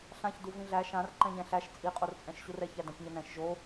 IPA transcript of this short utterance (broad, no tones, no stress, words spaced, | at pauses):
ɬãçdu vĩɮæ ʃãr ǃɛ̃ɲɛ̃ɬæʃ t͡sʼiqʼort͡sʼɛ̃ʃ ɕurɛç ædãçɲənɛ̃ʃ ʒo